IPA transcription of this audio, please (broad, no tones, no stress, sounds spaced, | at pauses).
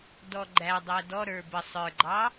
d ɔ ɡ͡ǃ æ dˤ æ d ɔ ɾ ə˞ b ə sˤ ə˞ ɡ͡ǃ ɑ